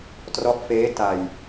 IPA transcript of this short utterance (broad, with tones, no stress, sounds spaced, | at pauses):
t r ɔ˦˥ ʔ f eː˦˥ t a˧ j